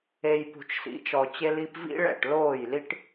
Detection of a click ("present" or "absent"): absent